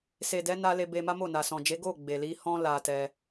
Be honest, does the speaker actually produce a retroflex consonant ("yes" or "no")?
no